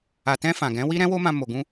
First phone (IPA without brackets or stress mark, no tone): a